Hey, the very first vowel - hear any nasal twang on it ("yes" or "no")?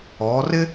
no